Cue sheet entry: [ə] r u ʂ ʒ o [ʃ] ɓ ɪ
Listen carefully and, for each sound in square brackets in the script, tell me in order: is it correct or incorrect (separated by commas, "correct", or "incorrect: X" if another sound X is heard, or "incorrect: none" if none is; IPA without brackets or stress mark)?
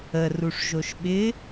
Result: correct, correct